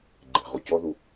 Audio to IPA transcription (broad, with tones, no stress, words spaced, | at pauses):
ɡ͡ǃe̤˨ʁu˨cɔ˦ðu˧